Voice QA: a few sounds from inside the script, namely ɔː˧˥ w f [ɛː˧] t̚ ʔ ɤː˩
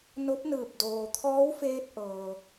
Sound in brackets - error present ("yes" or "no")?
yes